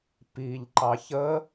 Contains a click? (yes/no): yes